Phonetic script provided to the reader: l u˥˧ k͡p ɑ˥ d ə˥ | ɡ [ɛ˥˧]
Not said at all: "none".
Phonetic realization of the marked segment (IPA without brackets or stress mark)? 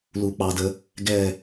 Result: ɛ˥˧